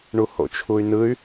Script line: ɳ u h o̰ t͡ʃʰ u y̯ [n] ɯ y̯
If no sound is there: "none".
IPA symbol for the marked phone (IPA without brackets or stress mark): n